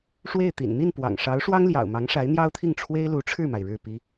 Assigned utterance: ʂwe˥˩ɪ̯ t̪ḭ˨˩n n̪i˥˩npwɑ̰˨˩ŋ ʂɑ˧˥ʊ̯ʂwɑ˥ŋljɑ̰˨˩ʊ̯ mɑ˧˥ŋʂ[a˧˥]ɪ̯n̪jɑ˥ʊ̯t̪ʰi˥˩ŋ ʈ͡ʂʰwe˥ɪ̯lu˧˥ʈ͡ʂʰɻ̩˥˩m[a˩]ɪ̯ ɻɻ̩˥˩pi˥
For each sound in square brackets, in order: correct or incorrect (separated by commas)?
correct, correct